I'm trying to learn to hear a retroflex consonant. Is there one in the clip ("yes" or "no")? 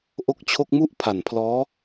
no